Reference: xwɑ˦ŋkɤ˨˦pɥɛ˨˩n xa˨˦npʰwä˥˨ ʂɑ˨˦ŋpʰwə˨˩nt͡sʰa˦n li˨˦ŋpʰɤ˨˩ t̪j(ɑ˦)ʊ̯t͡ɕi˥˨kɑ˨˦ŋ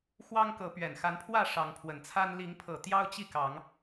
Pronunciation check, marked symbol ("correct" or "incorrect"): correct